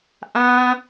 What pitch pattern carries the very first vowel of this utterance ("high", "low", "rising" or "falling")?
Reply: high